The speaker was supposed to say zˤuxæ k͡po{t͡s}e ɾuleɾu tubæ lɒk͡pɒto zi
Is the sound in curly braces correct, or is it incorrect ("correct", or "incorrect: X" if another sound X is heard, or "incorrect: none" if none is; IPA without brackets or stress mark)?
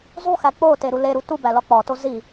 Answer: incorrect: t